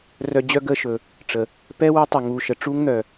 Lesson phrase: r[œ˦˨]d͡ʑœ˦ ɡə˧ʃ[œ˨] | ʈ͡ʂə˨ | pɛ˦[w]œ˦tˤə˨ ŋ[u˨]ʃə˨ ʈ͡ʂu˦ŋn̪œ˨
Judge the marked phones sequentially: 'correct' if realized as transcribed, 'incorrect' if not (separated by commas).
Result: incorrect, incorrect, correct, correct